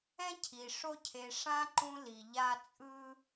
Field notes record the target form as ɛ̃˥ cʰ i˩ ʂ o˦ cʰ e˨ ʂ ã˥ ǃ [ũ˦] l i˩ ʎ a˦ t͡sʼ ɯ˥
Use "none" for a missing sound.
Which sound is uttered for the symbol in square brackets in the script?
ũ˦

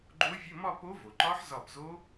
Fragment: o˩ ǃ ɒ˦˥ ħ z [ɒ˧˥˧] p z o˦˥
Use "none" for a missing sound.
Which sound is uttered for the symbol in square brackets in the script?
ɒ˧˩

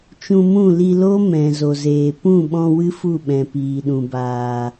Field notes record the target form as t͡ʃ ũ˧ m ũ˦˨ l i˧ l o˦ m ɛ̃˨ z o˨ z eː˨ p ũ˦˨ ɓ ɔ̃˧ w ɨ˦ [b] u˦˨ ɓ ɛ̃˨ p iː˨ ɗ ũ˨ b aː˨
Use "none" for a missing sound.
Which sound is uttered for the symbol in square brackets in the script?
f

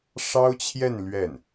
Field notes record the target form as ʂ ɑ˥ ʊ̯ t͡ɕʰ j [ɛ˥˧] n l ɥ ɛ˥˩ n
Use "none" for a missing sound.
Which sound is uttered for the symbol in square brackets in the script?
ɛ˥˧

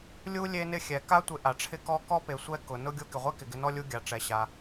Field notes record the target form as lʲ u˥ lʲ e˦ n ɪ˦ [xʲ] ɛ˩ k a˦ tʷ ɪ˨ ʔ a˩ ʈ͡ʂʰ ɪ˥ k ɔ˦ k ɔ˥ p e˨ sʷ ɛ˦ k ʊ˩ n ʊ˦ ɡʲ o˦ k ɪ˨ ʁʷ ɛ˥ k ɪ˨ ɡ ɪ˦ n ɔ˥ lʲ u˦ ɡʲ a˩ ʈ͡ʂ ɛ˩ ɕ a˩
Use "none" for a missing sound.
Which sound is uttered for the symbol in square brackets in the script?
xʲ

